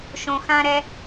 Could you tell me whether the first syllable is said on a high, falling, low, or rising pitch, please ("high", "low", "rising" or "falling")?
low